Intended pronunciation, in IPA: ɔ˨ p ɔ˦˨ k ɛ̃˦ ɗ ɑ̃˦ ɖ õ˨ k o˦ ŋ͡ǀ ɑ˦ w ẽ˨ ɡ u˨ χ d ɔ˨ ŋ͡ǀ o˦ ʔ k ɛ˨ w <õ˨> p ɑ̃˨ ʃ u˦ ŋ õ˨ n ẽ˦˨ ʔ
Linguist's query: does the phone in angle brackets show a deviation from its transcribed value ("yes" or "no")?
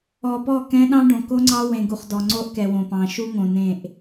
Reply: no